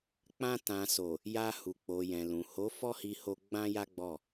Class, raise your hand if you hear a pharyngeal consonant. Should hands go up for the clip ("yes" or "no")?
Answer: no